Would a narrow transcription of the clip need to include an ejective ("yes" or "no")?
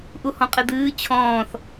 yes